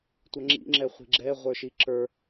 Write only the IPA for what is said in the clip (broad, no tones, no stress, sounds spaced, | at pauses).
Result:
tʷ ʌ ŋ͡ǁ ḭ ŋ͡ǁ ɛ χʷ i̤ ɡ͡ǁ ɛ ʁʷ ə˞ ʃ i ǁ ə˞